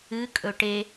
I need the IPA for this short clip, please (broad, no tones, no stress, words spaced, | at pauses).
ɨ kʼɵʈe